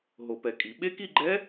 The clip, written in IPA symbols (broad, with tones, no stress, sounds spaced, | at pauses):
ɦ o˨˩˦ p ɛ˨˩˦ kʼ i˨˩˦ ɓ e˦˥ k i˥˧ ɡ͡ǃ ɛ˦˥